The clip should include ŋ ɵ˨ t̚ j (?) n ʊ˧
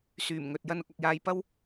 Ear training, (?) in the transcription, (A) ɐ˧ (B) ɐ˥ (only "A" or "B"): A